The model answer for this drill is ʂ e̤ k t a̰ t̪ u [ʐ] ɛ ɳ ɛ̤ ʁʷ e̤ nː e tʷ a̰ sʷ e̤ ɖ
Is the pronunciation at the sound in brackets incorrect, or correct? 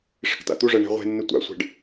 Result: correct